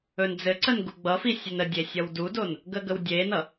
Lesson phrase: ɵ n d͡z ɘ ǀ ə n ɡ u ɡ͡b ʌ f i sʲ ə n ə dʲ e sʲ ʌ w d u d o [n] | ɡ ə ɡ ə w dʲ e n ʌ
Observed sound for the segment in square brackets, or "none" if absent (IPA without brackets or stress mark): n